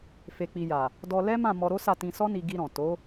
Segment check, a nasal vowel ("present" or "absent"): present